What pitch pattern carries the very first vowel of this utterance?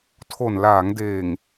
low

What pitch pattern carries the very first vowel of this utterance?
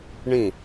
falling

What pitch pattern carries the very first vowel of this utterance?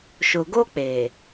low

